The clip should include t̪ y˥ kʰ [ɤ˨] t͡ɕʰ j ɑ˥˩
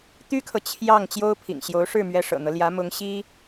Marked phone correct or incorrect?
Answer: correct